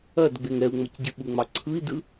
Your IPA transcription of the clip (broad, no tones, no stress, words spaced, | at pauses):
ɐd ɡ͡beŋɛu̯ŋ͡mɐcɟɨ ɓuŋ͡mɑǀʰɯi̯dɯ